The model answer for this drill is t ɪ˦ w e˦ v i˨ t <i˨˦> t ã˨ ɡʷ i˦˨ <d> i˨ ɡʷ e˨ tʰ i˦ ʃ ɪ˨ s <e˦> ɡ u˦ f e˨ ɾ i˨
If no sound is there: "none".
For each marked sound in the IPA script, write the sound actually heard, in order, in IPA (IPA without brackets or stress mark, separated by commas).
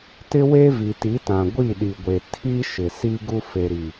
i˨˦, ɗ, i˦